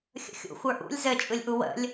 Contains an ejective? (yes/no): yes